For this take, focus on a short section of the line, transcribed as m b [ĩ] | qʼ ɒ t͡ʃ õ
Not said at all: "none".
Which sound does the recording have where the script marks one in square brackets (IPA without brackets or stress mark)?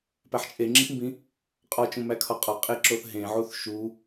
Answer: ĩ